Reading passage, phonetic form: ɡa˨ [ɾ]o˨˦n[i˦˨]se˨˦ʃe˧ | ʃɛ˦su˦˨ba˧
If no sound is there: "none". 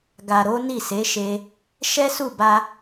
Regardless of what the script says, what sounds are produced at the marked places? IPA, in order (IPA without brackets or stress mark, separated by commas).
ɾ, i˦˨